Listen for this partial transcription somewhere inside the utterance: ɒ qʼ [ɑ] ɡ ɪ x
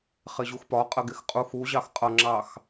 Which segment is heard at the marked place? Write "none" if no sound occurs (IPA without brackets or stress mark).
ə